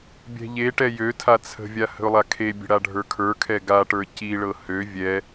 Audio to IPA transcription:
bʲ ɛ̤ ʎ e ʈ ɛ j ø tʰ a t͡sʰ ə̤ vʲ a h ə̤ ʊ̯ lˠ a kʰ e bʲ ə̤ ɽ a ɖʱ ə˞ kʰ ə˞ kʰ ɛ ɡ a ʈ ə˞ c i ɭ ɤ h ø vʲ ɛ

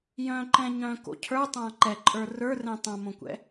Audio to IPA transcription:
j œ̃ ǃ ɛ̃ ɲ œ̃ k o̰ cʰ ə˞ tˤ ã ǃ ɛ ǃʼ ə˞ r ə˞ r ɛ̃ tˤ ã m õ kʷ ɛ̰

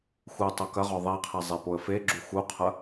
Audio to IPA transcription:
x u tˤ o k ɐ ʁ ɔ ðˤ i qʰ ɛ zˤ e p o ə̯ f e ɡ͡ǁ u x u qʰ ɐ

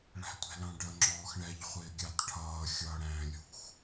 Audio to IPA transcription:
ɭ æ̤ tʷ ɛ̤ l ɑ̃ ɖ ə ŋ͡ǁ ɔː x ɳ ɛ ʎ χʷ ɪː ɡʲ ɑ t ʈʰ ʌː xʲ ʌː ɽ æ̃ː lʲ ṳ x

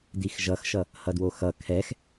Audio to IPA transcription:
d i x ʒ ʌ x ʃ ʌ | h ʌ d w o x ʌ kʰ ɛ x

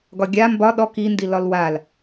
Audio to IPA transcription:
ɡ ɒ ɡʲ a m b ɒ ɗ ɔ k i n d i l ɒ l w a l

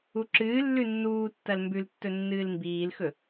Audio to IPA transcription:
u ǁ ɨː lː ʉ nː uː tː ɐ l m b ʉ l tː ɵ nː ɨː l m b iː l x ɵ

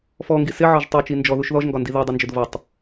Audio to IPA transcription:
f ɔ ŋ ɡ i s ɪ ʕ ɒ ʒ tˤ u t͡ʃ i n d͡ʒ ɔ ð u ʃ ð ɔ ʒ ŋ ɡ ɒ n d i ð u dˤ ʊ n d͡ʒ ʊ d v ʌ tˤ

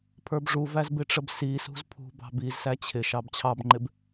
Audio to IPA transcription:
pʰ ə˞ b ʐ u v æ z b ɪ ʈ͡ʂ ə b s i s ṳ z pʰ ṳ b ɑ̤ b i z s æ t͡ɕʰ ɪ ʃ ɑ b t͡ɕʰ ɑ b ŋ͡ǃ ɪ b

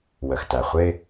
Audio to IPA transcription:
w ə˩ x t æ˩ χʷ ɪ˧

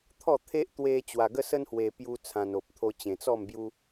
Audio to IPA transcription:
t̪ʰ ɔ˥˧ t̪ʰ e˦ ʔ t̪ w e˧ t͡ɕ w a˧ ɡ ə˦ s ə˦ n h w e˧ p j u˦ t͡sʰ ã˧ n o˨ p̚ t̪ʰ o˧ t͡ɕ ẽ˨˩ t͡s ɔ˥˧ m b j u˦

